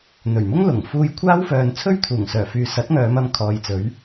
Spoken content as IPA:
n̪ɵ˨˩ɥmʊ˥ŋlʊ˨˩ŋ fuː˧jkʷʰaː˥wfœː˨n t͡sʰɵ˥ɥt̪ʰuː˨˩ŋsœː˨˩fyː˨ sɐ˨˥t̚ŋœː˨˧m ɐ˧m kʰɔː˨jt͡sɵ˨˥ɥ

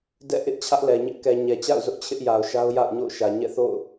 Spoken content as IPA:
dɛ̰˦˨ʔɪ˦ʔ t͡ɕʰä˦ʔlɛ˨ɲɪ˦ʔ kɛ˨ɲɛ˨t͡ɕa̰˦˨ʊ̯ zʊ˦ʔt͡ɕʰɪ˦ʔja˨ʊ̯ʃa˦ʊ̯ ja̰˦˨ʊ̯ɲo̰˦˨ʊ̯ʃä˨ ɲɛ̰˦˨θo̰˦˨ʊ̯

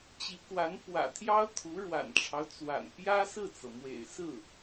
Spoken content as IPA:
t͡ɕi˧˥kwa˧˥n pwä̰˨˩t̪ʰjɑ˥ʊ̯t̪ʰu˧˥ ɻwa̰˨˩nʈ͡ʂʰɑ˦ʊ̯t͡swa̰˨˩n pjä˥ sɹ̩˥˩t͡sɤ˩mwḛ˨˩ɪ̯sɹ̩˥˩

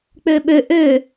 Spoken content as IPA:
k͡pøɓø ʔø

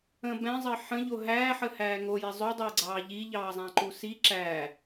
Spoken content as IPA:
ə̃ bɛ̃zˤɘ ħə̃ʎo ɦæːħəhæː ŋoji zˤodˤɘːɡ͡ǀɑː ʎiʎɑːzˤæ̃ǃu si ǁæ

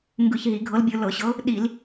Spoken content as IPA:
ŋɡɯ˧˩˧çɦi˧˩˧ɡʱɤ˨˥lbʲɯ˧˩˧ lɤ˧˩˧ɕɤ˨˥ | ɗi˧˩˧l

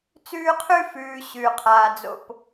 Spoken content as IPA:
t͡sʉː˦qʰʉ˦fʉː˨ ɕʉ˨qʰaː˨d͡zo̰˨p

